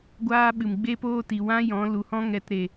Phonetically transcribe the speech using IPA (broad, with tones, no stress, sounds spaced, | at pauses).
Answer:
ɡʷ aː˦ ɓ ɨ˨ m ɡ͡b e˦ p oː˦ t i˨ w ã˦ j ɔ̃˨˦ l u˨ h ɔ̃˦ ŋ ɛ˧ t ɾ e˨